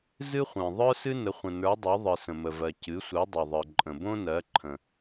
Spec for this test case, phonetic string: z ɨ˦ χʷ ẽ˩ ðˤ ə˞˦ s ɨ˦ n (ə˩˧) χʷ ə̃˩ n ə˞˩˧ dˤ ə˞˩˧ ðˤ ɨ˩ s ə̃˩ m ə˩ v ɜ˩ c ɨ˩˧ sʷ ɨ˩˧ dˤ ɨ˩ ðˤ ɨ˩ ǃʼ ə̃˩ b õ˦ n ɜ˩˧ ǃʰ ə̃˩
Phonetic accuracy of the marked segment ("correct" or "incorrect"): correct